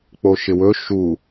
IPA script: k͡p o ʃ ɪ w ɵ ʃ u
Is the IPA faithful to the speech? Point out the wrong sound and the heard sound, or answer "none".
none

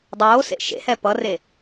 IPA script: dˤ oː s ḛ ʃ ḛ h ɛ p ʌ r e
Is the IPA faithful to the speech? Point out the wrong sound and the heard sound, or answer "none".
none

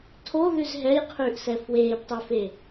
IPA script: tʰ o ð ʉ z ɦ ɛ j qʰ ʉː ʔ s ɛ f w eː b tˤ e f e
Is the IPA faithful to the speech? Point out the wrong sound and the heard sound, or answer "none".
none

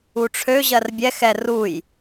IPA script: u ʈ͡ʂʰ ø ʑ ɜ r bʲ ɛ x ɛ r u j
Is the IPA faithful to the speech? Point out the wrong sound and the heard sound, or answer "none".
none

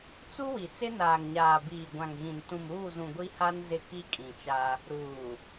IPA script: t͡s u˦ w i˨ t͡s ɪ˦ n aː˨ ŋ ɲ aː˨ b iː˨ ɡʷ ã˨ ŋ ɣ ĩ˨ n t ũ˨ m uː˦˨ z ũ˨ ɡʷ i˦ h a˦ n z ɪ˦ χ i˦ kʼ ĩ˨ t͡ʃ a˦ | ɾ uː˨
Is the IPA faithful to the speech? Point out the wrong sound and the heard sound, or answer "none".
χ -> k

